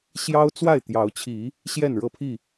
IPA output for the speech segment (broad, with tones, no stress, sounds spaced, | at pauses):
ɕ j ɑ˦ ʊ̯ t͡s w a˥˨ ɪ̯ t̪ j ɑ˨˦ ʊ̯ t͡ɕʰ i˨˦ | ɕ j ɛ˥˨ n ɻ ɤ˥˨ pʰ i˥˨